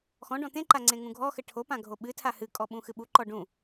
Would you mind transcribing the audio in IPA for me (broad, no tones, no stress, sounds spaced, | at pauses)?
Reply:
x ɔ̃ ɖ ɔ̃ t̪ ẽ ǃ a ŋ͡ǀ ẽ ŋ ũ ɡʱ ɔ x ɘ ʈʰ o p ã ɡʱ o ɓ ɨ tʰ a h ɨ kʼ ɔ ɓ ũ x ɨ ɓ u ǃ ɔ ɖ ũ